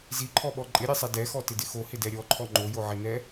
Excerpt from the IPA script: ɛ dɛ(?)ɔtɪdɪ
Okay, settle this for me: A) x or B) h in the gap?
A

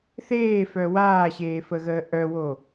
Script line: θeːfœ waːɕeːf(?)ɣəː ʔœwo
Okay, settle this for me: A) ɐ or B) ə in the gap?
B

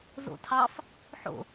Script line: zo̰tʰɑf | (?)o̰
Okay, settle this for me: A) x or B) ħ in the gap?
B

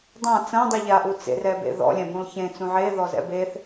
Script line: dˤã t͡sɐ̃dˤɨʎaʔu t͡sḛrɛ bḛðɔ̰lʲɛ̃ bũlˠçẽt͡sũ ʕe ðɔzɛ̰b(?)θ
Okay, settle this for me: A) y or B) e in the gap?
B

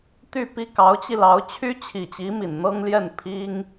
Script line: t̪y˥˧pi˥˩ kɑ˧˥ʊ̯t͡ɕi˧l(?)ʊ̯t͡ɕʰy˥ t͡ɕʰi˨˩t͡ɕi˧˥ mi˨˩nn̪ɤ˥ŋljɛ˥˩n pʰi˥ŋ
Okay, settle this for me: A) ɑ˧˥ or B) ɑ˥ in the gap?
A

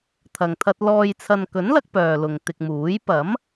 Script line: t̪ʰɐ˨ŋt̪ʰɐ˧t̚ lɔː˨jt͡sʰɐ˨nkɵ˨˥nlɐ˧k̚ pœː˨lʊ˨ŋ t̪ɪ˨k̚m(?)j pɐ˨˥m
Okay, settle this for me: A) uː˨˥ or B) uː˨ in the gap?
A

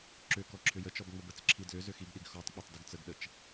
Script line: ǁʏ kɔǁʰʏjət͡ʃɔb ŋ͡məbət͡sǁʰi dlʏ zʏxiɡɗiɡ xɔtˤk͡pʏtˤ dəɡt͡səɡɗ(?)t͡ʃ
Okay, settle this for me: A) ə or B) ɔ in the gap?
A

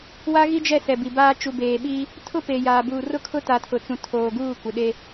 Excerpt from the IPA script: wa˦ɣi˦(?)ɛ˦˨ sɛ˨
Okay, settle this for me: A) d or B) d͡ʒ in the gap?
B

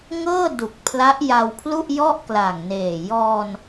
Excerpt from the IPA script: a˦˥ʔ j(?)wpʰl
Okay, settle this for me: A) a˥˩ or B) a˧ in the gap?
B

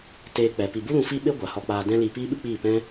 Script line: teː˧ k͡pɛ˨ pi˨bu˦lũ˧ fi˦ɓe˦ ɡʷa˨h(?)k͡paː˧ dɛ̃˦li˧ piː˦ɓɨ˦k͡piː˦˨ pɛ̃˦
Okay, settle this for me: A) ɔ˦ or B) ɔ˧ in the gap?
B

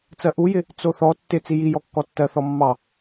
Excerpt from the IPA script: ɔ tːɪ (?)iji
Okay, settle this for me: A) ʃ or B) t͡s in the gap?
B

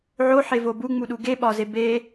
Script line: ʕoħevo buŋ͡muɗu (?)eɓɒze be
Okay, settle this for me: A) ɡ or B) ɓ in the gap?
A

